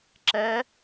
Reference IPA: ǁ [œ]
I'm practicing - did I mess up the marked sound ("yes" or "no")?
yes